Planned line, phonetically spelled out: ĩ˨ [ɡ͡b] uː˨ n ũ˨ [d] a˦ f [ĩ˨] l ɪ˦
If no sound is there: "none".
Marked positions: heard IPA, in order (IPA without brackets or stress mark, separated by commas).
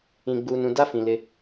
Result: ɡ͡b, d, ĩ˨